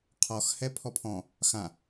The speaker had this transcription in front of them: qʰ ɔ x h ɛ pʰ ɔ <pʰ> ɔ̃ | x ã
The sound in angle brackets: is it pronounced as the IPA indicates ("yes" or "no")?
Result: yes